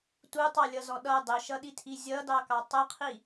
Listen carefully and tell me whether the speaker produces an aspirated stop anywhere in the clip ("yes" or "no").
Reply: yes